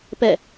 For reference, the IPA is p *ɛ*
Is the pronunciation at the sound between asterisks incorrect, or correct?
correct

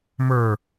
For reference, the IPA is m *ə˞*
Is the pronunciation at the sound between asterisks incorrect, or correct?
correct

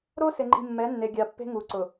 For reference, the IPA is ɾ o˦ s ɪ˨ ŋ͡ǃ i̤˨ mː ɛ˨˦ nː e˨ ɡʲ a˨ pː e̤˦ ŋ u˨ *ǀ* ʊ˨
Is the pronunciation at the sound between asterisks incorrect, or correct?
correct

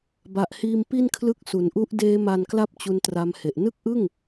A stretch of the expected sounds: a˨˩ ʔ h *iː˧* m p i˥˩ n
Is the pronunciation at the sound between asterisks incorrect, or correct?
correct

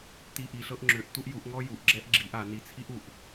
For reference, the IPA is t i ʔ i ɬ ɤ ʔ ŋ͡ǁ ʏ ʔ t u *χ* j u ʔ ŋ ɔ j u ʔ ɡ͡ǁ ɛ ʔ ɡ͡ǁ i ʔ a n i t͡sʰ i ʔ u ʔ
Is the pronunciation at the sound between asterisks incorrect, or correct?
incorrect: ʔ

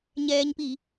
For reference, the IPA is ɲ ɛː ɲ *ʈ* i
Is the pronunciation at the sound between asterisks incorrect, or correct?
incorrect: p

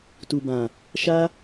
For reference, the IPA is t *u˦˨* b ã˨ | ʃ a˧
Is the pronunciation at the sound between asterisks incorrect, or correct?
incorrect: u˨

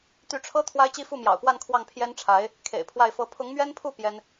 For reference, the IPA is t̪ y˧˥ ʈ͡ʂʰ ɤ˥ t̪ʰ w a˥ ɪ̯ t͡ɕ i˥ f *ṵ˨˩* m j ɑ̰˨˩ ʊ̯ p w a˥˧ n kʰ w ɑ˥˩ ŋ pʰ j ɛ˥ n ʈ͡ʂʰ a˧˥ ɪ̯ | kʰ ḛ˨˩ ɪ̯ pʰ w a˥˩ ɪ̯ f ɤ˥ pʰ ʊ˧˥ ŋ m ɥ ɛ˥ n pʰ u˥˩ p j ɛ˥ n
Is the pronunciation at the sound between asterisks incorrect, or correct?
incorrect: u˥˩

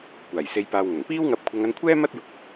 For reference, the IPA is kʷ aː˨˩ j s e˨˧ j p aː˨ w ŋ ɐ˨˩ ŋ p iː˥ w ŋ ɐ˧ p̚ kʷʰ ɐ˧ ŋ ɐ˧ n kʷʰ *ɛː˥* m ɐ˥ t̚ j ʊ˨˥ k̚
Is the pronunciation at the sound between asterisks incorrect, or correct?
correct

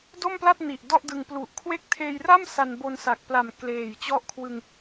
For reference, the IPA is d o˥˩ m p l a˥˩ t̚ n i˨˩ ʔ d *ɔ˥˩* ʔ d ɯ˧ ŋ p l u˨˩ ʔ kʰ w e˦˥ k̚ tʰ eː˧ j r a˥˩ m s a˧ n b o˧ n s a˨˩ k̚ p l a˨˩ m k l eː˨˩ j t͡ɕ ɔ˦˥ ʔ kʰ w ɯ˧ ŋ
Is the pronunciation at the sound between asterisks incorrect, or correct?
correct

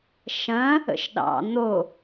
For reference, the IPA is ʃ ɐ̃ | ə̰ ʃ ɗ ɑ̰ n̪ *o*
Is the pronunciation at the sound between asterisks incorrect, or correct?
correct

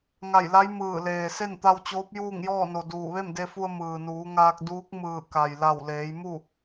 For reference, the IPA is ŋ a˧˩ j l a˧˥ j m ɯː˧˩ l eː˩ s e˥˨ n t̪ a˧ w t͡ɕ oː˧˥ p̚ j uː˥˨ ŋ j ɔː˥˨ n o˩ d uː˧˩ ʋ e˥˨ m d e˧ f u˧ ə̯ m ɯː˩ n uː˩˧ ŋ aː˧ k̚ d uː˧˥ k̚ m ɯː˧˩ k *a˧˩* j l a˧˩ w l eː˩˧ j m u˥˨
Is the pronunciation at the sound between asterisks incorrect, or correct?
incorrect: a˩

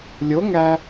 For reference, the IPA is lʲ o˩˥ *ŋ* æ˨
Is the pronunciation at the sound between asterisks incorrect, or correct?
correct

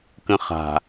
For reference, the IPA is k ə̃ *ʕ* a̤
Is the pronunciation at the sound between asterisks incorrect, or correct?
incorrect: χ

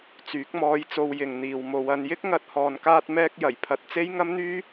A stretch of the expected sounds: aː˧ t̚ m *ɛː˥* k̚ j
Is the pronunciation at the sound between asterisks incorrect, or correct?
incorrect: ɛː˧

